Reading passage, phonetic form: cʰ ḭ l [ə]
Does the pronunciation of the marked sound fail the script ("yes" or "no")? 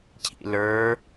yes